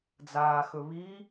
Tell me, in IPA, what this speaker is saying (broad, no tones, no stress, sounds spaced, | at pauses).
d͡z aː x ɵ β i